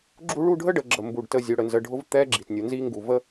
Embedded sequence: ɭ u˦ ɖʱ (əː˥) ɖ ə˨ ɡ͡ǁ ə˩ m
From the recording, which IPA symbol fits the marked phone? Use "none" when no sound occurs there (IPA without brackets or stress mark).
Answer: ə˥